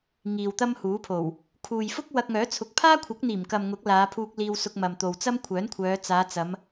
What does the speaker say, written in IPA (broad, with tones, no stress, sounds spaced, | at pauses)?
ŋ iː˨ w t̪ ɐ˥ m h uː˨˥ pʰ o˨˩ w | kʰ uː˨ j f ʊ˥ k̚ w ɐ˧ k̚ ŋ œː˨˥ t͡sʰ ʊ˨ k̚ pʰ aː˥ kʷʰ ɐ˨˥ k̚ n̪ iː˨˩ m k ɐ˨ m ŋ ʊ˨˥ k̚ l aː˨˧ pʰ uː˧ k̚ l iː˧ w s ʊ˧ k̚ m ɐ˨ m t̪ o˨ w t͡s ɐ˥ m kʷʰ œː˨˥ n kʷʰ œː˨˧ t͡s aː˨˧ t͡s ɐ˨˧ m